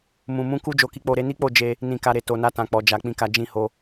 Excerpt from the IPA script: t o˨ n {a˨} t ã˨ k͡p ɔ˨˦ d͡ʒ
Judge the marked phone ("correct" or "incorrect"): incorrect